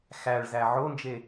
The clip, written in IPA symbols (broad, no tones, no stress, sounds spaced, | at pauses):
x æ ɭ z æ ʕ o n d͡ʒ e